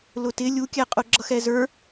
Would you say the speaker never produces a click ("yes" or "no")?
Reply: no